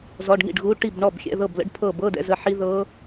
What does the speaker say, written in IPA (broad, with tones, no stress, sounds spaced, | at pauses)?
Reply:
z ɔ˧˥˧ ɖ ŋ ḭ˥˩ ɖ ɣ u˧˥˧ ʈ i˥˩ b ɳ ɔ˥˩ b xʲ ɛ̰˧˥˧ ð ɤ˥˩ b l ə̰˦˥ ɖ pʰ ɤ˥˩ b ɤ˧˥˧ d ɛ̰˧˥˧ z ə˥˩ ħ i˦˥ ð ɤ˦˥